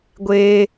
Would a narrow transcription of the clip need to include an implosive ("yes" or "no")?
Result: no